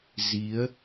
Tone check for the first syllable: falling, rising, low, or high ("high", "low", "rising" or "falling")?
rising